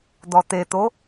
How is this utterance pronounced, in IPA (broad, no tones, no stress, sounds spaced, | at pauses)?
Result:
d̪ ɔ t̪ e t̪ o